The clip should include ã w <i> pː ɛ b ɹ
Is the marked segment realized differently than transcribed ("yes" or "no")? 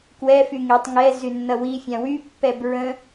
yes